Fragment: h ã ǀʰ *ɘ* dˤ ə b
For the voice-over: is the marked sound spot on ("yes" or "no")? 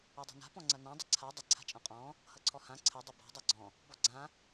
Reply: yes